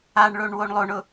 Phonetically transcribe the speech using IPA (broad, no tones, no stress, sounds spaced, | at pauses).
a ɳ ɭ o ɳ w o ɳ lˠ o ɳ ʊ